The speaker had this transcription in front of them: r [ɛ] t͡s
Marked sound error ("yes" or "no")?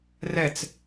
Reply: no